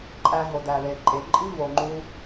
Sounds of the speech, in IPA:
ǃʼ æ˧ ɦ o˨ d æ˨ ð e˨ ǃʼ e˨ ǃʼ i˦ v o˨ ŋ͡ǃ u˧

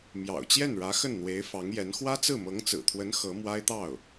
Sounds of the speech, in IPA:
m j ɑ̰˨˩ ʊ̯ t͡ɕ j ɛ˥˩ n ɻ ä˧˥ x ə˥˩ n n̪ w e˧˥ ɪ̯ f ɑ˧˥ ŋ j ɛ˧˥ n x w ä˥ t͡s ɹ̩˥˩ m ɤ˧˥ ŋ t͡s ɹ̩˨˩ t̪ʰ w ə˧˥ n x ɤ˧˥ m w a˥ ɪ̯ t̪ ɑ˥˩ ʊ̯

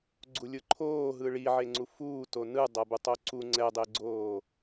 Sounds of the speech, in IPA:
ɡ͡ǀ u lʲ ɯ ǃʰ oː ɦ ɯ ɭ i ʕ e ŋ͡ǀ u f uː t o n ɯ dˤ ʌ b u tˤ o ǀ u ŋ͡ǀ ɛ dˤ e ɡ͡ǀ oː

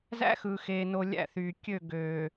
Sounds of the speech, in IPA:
z æ̰˦ x ɯ˨ x eː˨ n o˨ lʲ æ̰˦˨ θ yː˨ kʲ ø˦˨ ɡ øː˨

